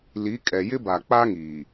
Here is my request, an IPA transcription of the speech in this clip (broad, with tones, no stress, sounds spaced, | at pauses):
l i˨˦ kʼ ɛ˨ j ɪ˦ b a˨ k͡p a˦ ŋ iː˨